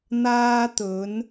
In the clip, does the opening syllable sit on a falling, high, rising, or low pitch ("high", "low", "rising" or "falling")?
high